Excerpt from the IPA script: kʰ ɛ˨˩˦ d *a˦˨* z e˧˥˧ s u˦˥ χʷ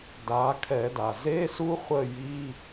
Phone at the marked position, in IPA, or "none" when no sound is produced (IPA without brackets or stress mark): a˩